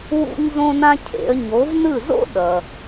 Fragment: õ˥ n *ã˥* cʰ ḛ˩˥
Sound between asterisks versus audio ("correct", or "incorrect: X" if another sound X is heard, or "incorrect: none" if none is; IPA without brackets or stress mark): correct